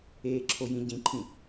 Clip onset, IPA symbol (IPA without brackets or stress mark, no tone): eː